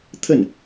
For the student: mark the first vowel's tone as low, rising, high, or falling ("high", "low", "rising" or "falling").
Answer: falling